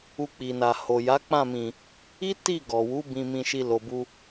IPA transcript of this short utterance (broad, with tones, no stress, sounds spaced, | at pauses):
u˧ k͡p i˨ n a˨ h o˨ j a˨˦ k͡p ã˦˨ m ĩ˨ | i˦ t i˦˨ ɡ ɔ˨ w u˨˦ b ĩ˧ m ĩ˧ ʃ i˧ l o˨ b u˧